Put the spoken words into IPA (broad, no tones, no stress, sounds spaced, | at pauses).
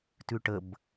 t ʉ ʈ ə b